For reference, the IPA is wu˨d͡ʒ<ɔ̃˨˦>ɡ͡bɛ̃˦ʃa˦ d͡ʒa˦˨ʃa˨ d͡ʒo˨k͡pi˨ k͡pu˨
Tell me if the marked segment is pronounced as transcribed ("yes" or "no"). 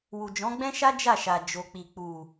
yes